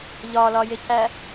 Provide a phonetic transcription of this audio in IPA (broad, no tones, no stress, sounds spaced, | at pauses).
ʎ ɒ l ɒ j e c æ